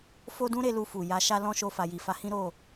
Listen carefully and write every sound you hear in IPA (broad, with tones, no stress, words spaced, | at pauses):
fo˦dũ˦ ɾe˦lu˧fu˨ja˨˦ ʃa˦lɔ̃˦ʃo˧ fa˨ji˨fa˨˦hĩ˦ ɾo˦˨